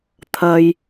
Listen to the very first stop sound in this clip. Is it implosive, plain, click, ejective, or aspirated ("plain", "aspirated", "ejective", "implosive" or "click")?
aspirated